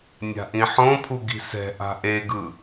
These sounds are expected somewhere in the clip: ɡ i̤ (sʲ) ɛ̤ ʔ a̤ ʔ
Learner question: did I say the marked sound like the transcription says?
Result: no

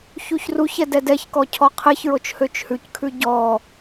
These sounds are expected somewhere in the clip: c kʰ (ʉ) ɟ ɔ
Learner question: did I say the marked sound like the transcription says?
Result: yes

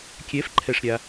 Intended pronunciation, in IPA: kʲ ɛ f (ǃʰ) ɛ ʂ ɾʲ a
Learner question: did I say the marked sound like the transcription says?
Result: yes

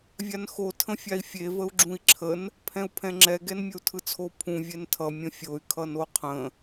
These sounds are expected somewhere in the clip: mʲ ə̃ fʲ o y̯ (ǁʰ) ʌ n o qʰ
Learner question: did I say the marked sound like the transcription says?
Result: no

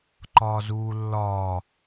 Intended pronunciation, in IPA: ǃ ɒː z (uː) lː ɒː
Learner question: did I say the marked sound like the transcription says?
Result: yes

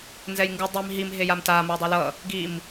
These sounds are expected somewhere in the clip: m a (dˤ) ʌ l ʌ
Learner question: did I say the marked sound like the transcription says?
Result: yes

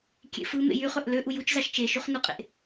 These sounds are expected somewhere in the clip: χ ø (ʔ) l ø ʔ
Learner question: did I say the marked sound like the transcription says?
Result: yes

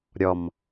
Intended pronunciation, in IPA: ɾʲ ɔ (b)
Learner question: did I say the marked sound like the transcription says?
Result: no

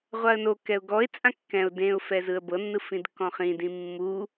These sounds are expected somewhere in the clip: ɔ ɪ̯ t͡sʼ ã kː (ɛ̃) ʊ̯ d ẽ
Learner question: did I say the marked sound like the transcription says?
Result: yes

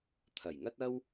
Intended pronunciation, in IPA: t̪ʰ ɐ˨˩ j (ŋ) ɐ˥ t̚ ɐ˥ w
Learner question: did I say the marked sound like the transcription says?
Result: yes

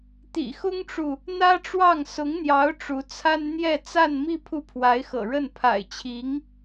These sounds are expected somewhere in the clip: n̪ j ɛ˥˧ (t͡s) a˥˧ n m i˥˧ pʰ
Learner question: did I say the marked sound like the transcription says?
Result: yes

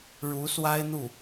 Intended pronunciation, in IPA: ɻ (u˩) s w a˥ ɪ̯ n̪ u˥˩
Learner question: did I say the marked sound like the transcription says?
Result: no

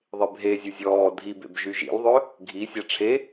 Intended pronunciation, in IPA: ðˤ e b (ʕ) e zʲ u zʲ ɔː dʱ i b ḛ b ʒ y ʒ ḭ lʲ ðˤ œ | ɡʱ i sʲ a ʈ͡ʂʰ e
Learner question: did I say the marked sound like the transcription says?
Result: no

